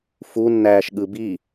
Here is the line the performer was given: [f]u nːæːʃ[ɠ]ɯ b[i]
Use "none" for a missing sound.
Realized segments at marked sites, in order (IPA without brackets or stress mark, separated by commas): f, ɠ, i